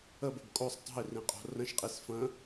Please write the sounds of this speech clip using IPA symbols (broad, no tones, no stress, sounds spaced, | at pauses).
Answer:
ə b ə b kʼ o sˤ tˤ o̤ i̯ r ĩ qʼ o̤ r ə̃ ʃ qʼ i s f ə̃